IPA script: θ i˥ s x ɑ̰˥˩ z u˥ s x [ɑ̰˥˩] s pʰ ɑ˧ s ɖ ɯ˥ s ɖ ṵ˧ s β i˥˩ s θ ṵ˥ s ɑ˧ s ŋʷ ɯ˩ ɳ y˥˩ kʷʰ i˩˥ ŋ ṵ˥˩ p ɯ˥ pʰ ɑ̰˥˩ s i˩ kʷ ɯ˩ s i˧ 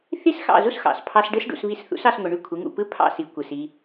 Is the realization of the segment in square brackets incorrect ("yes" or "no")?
yes